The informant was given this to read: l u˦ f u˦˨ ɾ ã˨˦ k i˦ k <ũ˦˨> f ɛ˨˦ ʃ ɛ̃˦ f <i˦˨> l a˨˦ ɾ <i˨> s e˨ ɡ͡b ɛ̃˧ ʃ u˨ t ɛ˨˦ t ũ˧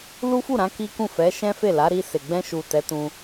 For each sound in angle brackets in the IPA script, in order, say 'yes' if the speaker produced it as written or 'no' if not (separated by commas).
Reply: yes, no, no